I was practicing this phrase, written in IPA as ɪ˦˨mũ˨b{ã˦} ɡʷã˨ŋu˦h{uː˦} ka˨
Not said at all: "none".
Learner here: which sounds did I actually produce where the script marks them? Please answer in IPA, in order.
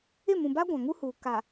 a˦, uː˨

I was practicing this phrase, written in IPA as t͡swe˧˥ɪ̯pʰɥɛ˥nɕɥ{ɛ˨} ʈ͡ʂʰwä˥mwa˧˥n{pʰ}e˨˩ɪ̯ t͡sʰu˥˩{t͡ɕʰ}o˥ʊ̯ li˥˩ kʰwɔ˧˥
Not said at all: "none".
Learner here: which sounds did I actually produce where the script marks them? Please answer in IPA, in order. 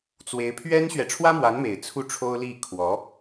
ɛ˨, m, ʈ͡ʂʰ

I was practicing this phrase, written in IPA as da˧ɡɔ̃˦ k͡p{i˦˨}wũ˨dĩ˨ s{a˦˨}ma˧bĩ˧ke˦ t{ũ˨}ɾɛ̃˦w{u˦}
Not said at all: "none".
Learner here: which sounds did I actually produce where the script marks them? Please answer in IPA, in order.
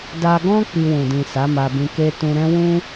i˧, a˨˦, ũ˧, ũ˦

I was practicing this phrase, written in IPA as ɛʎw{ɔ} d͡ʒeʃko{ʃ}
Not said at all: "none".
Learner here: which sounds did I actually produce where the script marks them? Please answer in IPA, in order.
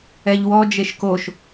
ɔ, ʃ

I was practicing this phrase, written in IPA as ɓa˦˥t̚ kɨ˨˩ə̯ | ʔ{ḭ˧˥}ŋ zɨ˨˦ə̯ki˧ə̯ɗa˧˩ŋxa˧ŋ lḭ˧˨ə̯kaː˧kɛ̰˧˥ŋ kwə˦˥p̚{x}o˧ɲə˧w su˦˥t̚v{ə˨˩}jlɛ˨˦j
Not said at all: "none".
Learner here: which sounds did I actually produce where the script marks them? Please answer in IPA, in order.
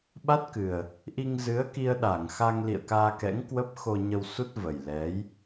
i˧, x, ə˨˩

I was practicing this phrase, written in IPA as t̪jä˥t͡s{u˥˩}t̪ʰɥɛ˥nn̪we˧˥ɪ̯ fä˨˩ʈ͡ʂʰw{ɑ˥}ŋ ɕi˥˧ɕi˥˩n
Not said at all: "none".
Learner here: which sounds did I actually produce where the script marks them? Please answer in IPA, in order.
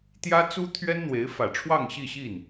u˥, ɑ˥˧

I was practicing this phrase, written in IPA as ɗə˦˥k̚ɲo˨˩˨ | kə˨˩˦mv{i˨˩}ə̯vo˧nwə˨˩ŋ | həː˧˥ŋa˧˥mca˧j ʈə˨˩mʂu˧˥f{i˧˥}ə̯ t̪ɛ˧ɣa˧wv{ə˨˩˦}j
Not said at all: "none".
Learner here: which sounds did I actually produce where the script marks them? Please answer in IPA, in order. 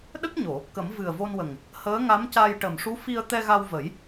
ɨ˨˩, i˧, ə˨˩˦

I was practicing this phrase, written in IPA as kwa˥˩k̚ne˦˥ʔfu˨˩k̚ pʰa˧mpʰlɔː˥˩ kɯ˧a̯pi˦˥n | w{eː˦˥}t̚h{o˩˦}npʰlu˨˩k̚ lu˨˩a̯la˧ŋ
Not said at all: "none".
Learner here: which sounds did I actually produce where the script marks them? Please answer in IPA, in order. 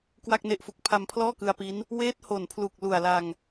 eː˦˥, o˨˩

